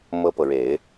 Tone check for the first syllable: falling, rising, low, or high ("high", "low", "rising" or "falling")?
high